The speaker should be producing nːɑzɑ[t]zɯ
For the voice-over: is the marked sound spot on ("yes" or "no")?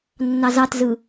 yes